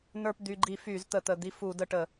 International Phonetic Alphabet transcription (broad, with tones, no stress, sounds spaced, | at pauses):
n ə˞˧ p d̪ y˩˧˩ ɡ͡ǃ i˧˩˧ f yː˧˩˧ z t̪ ə˧˩˧ t̪ ə˩˧˩ d̪ i˧ f u˧˩˧ d ə˧ ʈ ə˧˩˧